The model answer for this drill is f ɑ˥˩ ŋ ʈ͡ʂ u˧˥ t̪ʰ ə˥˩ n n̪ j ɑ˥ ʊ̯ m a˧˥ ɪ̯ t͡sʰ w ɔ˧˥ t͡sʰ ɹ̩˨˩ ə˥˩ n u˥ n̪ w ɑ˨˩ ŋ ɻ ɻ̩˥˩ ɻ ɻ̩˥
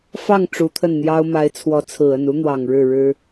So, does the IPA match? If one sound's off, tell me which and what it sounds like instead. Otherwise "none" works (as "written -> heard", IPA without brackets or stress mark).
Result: none